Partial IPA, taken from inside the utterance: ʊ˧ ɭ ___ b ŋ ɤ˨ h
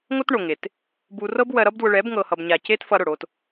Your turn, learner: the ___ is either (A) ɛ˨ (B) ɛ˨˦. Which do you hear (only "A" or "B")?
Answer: B